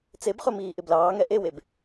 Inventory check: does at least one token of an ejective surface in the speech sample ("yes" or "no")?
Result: no